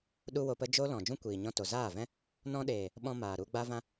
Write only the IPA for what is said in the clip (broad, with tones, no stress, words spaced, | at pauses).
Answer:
ɗu˦wo˧pə˦ d͡ʒo˦lɔ̃˨ d͡ʒũ˦kʷiː˨ɲɔ̃˧to˨ zaː˦˨vɛ̃˦ | nɔ̃˧ɗeː˨ | ɓɔ̃˧maː˨ ɾu˧ ɡ͡ba˦ vã˦